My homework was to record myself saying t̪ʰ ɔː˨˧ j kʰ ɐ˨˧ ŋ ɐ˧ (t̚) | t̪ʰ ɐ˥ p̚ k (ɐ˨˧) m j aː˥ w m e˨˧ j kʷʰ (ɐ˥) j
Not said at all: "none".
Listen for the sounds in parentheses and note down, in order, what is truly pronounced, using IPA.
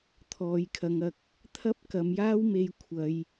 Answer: k̚, ɐ˨˧, ɐ˨˧

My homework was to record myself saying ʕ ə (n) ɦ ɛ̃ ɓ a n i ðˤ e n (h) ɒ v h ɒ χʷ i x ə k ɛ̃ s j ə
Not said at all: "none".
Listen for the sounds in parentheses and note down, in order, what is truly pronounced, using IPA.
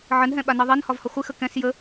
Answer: n, h

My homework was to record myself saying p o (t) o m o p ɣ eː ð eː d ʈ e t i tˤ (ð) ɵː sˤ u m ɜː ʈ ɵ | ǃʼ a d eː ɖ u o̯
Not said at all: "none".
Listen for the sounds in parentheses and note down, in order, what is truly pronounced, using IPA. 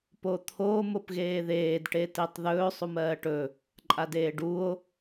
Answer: t̪ʰ, ð

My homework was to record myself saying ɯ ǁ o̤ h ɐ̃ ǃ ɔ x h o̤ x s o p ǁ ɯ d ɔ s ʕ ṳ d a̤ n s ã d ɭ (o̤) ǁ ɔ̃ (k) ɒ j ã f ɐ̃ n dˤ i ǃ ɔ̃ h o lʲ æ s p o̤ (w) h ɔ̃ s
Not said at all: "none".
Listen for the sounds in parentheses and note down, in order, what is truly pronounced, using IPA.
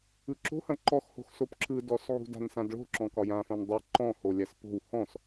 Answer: o̤, k, w

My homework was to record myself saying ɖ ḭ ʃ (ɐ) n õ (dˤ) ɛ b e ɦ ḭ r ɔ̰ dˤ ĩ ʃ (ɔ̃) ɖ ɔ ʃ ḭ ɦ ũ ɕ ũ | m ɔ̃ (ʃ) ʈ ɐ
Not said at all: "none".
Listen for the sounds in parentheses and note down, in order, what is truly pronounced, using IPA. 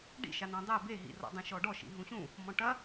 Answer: a, dˤ, ɔ, none

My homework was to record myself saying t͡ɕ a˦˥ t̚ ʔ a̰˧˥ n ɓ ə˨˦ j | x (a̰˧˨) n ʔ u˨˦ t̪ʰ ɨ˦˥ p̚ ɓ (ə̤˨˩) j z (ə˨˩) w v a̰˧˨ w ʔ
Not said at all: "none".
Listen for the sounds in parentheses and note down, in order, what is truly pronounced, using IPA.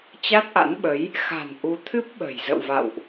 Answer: a̤˨˩, ə̤˨˩, ə̰˧˨

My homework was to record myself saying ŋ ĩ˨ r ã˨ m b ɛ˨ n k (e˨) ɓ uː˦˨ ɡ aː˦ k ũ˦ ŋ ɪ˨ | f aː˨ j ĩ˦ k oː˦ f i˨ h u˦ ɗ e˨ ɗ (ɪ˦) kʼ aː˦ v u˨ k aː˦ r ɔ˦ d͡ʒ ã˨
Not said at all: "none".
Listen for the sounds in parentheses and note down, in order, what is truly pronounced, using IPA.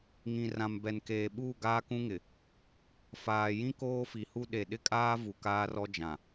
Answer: eː˨, ɪ˦

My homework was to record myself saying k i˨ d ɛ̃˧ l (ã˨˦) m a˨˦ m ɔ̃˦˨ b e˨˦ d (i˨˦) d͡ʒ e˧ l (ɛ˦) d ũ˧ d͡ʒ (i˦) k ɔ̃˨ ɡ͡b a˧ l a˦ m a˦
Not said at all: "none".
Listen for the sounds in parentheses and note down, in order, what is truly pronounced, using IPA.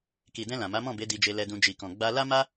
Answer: ã˨, i˧, ɛ˧, i˨

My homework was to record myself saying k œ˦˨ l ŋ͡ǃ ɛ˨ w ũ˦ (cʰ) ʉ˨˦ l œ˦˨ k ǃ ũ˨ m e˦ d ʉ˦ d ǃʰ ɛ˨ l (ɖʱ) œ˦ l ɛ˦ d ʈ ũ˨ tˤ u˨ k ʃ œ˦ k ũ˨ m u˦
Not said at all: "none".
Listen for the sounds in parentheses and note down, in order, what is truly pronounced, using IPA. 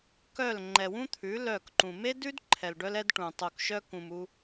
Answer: t̪ʰ, ɖ

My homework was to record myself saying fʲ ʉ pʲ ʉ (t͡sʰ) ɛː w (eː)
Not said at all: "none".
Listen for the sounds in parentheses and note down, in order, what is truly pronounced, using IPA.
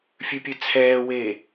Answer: t͡sʰ, eː

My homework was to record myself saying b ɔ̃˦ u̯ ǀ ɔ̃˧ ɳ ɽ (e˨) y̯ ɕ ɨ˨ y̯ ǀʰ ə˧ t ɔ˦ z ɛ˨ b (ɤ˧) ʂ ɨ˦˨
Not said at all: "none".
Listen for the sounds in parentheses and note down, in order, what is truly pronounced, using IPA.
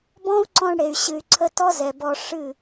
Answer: e˨, ɔ˧

